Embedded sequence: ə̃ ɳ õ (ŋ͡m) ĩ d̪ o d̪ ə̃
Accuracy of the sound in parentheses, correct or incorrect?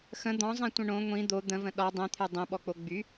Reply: incorrect: ŋʷ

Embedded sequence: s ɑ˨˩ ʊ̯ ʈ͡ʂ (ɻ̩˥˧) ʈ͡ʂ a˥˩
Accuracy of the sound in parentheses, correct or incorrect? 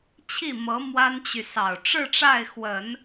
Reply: correct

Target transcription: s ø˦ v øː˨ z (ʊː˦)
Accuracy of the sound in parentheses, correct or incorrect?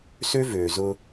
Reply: correct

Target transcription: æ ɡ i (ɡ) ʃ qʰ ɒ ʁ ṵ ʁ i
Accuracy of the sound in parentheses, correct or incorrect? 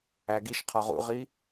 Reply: incorrect: none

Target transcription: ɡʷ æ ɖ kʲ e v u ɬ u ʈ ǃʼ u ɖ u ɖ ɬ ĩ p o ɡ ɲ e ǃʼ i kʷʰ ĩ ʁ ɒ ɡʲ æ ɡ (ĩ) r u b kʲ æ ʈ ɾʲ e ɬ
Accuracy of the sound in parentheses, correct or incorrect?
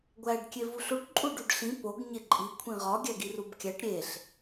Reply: incorrect: i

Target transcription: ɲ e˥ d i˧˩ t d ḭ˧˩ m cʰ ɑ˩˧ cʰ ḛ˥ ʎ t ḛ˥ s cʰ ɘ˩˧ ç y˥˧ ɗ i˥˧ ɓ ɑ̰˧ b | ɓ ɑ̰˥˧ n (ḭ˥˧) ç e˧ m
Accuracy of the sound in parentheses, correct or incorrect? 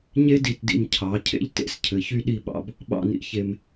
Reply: incorrect: ḭ˧˩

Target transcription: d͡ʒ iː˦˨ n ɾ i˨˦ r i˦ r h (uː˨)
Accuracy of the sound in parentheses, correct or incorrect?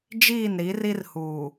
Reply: correct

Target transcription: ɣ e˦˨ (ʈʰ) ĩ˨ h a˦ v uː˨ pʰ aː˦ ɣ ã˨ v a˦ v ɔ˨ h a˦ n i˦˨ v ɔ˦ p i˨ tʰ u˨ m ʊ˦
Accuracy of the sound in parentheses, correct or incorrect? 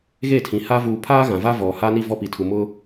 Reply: incorrect: tʰ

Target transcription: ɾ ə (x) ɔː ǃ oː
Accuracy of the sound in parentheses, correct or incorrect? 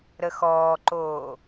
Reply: correct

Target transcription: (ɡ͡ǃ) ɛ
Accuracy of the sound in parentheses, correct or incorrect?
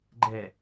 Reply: correct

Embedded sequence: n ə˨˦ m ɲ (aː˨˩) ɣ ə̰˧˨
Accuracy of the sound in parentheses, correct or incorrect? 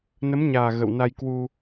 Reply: correct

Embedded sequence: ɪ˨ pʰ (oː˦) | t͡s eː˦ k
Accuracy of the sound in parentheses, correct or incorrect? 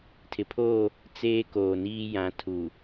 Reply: incorrect: oː˦˨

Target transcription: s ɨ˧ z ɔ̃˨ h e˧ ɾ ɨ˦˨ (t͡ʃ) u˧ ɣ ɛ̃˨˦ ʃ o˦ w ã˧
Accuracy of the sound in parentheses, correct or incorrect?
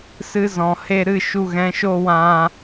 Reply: incorrect: ʃ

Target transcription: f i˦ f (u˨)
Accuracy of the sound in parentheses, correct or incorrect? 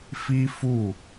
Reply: incorrect: u˦˨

